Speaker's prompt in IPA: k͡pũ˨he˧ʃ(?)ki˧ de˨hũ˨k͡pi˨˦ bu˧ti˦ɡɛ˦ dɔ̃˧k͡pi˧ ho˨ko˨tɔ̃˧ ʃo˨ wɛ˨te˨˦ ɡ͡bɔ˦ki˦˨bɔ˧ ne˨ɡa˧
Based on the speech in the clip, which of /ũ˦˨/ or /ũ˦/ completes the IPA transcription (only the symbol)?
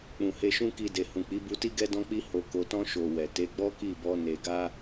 ũ˦